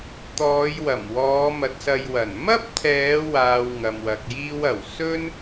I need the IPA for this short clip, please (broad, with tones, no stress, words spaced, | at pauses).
t̪ɔː˨˧j wɐ˨˩mwɔː˨˧ mɐ˨˥t̚sɐ˧jwɐ˨˩n mɐ˥p̚t̪ʰɛː˨˧ waː˧wŋɐ˨mwɐ˨k̚ jiː˥wɐ˨˩w sɵ˥n